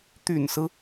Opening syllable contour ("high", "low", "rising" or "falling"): low